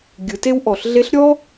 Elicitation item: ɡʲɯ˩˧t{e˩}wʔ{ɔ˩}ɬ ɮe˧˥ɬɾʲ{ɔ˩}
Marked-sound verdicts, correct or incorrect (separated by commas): incorrect, correct, incorrect